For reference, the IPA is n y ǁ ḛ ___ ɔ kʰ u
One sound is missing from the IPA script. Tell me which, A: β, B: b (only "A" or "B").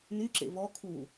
A